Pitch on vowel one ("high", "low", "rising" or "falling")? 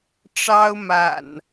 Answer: high